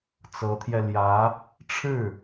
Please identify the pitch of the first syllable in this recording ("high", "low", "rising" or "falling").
rising